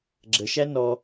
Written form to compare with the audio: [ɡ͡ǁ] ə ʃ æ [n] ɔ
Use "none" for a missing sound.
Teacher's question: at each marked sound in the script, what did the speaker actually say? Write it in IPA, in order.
ɡ͡ǁ, n

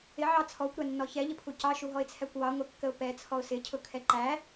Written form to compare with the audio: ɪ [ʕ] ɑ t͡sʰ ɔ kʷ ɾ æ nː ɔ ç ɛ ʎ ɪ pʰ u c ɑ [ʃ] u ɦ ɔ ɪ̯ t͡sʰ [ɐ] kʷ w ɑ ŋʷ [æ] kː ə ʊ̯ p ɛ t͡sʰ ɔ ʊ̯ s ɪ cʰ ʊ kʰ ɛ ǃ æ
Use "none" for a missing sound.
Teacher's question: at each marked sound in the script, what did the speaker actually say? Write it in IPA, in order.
ʕ, ʃ, æ, ɛ

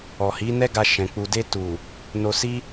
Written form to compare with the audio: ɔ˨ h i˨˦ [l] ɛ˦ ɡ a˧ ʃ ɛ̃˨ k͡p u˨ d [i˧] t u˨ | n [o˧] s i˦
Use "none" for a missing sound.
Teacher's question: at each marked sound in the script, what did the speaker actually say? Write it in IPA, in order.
n, e˧, o˧

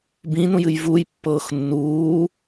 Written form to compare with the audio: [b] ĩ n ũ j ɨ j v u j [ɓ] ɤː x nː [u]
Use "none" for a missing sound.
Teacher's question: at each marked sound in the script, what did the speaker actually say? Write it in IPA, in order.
b, pː, uː

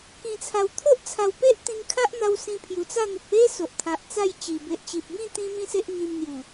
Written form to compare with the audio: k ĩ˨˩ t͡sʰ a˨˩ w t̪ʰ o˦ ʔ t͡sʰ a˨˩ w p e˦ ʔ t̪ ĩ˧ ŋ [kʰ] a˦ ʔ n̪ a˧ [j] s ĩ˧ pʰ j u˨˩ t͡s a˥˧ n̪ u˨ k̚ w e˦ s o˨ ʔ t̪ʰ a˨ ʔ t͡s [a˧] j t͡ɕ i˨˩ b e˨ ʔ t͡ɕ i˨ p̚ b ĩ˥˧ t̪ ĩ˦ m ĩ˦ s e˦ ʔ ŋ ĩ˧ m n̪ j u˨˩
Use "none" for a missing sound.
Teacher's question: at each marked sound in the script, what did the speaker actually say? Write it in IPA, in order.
kʰ, w, a˥˧

